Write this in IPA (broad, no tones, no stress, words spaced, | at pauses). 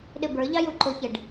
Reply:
ɗɪbə˞ʎɑ juǃʊçɪɖ